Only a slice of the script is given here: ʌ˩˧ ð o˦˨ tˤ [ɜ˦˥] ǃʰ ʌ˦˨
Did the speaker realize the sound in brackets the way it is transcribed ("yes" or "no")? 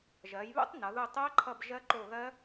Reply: yes